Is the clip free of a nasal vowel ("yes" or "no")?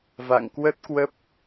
yes